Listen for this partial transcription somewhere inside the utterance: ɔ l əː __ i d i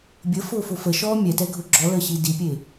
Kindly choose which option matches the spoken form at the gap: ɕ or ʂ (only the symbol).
ɕ